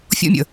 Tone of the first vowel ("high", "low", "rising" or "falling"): high